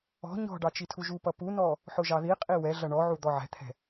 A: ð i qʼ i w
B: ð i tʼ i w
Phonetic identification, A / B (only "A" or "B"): A